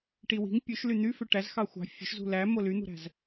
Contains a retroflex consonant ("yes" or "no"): yes